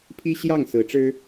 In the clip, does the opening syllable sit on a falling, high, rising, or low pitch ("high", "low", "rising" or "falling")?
high